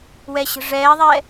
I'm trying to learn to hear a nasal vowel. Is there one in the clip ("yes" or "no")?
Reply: no